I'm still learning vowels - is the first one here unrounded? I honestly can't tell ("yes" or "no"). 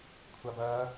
yes